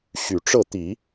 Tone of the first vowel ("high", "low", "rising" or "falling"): low